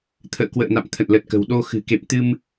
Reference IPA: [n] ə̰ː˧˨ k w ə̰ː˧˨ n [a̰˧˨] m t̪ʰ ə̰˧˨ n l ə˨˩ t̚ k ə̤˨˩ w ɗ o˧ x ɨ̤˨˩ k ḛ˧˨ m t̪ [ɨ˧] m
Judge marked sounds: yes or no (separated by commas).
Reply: no, yes, yes